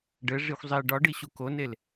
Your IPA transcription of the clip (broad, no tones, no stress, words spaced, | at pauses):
ɖɘʐixʷ zˤi ɖɒɖi ɕukonel